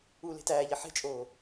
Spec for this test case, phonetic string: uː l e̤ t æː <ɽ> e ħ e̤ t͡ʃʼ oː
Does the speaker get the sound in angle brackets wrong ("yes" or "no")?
yes